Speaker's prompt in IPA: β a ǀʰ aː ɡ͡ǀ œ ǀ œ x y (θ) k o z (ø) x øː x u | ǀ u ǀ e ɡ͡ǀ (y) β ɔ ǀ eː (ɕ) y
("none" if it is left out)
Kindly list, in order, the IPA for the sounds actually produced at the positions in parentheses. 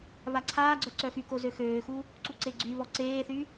none, ø, y, θ

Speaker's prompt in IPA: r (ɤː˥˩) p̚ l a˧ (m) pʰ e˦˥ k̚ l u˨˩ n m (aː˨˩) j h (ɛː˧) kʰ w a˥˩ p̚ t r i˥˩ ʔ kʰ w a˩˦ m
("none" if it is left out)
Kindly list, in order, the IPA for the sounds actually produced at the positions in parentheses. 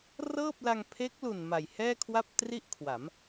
ɤː˥˩, ŋ, a˨˩, ɛː˥˩

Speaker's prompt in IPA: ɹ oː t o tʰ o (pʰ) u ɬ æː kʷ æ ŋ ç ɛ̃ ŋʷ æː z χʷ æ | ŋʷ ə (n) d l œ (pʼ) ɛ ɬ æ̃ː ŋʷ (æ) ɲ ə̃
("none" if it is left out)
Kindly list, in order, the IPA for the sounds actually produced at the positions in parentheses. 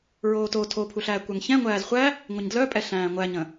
pʰ, ɲ, pʼ, æ

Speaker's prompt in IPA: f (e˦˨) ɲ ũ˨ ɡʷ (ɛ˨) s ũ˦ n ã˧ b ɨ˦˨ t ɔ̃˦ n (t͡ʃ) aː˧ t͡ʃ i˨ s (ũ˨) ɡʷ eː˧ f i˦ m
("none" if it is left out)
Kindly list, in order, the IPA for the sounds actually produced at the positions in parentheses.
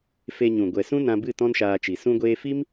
e˧, ɛ˨, ʃ, ũ˧

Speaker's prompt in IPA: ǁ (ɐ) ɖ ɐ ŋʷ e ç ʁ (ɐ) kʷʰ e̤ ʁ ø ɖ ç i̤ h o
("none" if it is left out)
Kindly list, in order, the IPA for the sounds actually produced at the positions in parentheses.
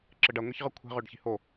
ə, ə

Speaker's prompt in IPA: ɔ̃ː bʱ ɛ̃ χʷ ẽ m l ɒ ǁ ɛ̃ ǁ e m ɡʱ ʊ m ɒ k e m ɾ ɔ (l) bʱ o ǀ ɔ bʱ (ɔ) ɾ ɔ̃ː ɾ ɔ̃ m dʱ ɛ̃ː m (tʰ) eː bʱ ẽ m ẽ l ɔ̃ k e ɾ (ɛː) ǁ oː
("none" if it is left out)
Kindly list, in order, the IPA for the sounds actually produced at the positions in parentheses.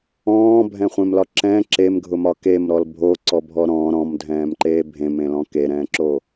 l, ɔ, ǃ, ɛ̃ː

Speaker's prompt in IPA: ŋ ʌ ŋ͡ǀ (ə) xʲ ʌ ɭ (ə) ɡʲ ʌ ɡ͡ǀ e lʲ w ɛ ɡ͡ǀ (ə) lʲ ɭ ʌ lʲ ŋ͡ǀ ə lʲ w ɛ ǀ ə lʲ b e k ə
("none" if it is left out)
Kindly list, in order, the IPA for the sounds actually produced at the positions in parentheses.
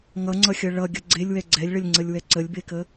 ʌ, ʌ, ɛ

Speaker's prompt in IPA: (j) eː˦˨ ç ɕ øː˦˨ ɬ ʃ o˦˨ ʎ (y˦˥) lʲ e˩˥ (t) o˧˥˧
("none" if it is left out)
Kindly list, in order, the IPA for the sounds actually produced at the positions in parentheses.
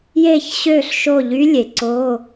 j, y˦˥, ǀ

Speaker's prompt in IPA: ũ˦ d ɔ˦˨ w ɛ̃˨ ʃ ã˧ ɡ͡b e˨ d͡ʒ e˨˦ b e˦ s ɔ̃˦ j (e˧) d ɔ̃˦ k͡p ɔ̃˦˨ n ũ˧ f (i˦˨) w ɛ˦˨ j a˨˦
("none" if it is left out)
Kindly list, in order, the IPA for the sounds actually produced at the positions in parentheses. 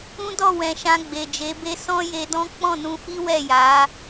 e˧, i˦

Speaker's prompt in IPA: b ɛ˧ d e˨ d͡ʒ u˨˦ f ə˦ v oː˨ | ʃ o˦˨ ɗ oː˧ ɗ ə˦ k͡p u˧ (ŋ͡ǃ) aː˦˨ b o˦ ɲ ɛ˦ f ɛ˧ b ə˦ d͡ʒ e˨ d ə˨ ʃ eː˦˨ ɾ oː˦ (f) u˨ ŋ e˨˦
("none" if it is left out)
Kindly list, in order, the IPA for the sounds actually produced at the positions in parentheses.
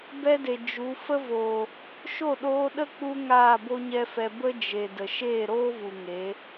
ŋ, v

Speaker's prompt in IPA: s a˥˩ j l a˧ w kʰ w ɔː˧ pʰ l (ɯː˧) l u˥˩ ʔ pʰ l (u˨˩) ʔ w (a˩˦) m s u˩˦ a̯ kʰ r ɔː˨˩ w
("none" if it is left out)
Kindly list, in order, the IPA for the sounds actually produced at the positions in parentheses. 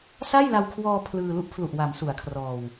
ɯː˧, u˨˩, a˩˦

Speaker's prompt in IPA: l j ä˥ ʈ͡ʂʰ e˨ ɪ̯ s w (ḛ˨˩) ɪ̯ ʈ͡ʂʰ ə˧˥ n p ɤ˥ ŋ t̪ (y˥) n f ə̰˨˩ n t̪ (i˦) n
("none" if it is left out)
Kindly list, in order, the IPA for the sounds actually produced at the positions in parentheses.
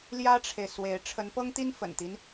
e˧˥, i˥, i˦

